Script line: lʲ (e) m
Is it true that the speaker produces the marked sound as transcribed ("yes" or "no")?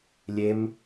yes